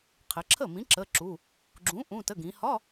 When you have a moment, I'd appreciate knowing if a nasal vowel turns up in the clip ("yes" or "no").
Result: yes